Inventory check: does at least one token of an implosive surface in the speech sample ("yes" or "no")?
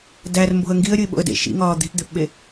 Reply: yes